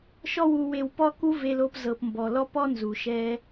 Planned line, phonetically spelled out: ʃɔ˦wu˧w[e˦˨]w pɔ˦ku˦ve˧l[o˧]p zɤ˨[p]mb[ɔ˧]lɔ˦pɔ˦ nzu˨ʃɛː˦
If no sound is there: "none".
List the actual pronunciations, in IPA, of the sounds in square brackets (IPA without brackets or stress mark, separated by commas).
e˧, o˧, p, ɔ˨